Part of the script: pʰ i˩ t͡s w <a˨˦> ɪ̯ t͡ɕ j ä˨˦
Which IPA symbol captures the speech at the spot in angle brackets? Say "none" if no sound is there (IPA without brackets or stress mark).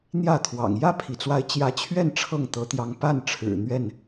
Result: a˨˦